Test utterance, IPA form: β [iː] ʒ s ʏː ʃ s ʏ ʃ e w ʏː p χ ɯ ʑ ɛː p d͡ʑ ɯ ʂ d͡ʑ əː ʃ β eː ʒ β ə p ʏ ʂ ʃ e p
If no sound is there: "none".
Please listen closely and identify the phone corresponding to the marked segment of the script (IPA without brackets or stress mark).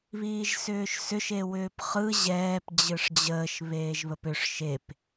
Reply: iː